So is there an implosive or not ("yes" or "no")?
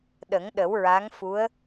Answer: yes